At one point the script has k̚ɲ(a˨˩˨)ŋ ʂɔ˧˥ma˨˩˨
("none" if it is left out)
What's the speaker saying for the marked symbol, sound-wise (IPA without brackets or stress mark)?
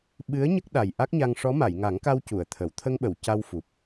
a˧